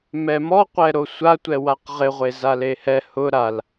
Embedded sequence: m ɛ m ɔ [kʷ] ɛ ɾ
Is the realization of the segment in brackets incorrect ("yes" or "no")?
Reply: yes